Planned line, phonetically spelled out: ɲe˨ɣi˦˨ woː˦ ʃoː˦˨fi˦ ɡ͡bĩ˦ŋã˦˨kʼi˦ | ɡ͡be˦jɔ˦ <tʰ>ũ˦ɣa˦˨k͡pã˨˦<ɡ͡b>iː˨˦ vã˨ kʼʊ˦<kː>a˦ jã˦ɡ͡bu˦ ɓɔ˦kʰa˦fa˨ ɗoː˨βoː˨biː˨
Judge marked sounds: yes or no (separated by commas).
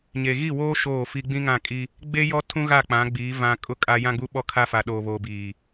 yes, yes, no